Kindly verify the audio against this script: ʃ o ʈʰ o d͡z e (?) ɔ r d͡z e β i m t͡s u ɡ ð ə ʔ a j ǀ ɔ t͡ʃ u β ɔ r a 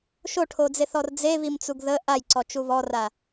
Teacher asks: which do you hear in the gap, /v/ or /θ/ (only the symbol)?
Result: θ